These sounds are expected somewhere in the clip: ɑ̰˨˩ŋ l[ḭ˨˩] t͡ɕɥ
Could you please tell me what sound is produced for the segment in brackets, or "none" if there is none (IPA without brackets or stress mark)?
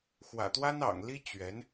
i˥